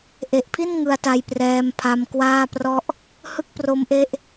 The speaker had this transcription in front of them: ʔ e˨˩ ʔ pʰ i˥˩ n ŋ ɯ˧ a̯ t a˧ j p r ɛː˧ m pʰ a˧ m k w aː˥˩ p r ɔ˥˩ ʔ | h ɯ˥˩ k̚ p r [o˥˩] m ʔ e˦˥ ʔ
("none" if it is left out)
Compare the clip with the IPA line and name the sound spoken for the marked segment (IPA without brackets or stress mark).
o˦˥